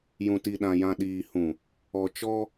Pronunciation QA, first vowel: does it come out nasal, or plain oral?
nasal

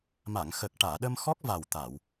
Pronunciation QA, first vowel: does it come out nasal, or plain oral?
oral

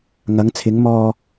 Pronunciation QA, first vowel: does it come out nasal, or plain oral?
oral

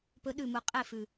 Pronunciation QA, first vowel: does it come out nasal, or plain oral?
oral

